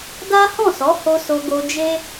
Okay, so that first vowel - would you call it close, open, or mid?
open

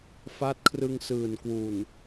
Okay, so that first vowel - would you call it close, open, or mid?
open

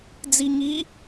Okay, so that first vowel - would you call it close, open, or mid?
close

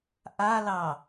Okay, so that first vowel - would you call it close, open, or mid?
open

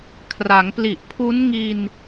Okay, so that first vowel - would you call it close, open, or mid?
open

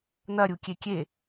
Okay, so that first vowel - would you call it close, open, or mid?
open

